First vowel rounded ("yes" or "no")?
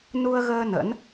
yes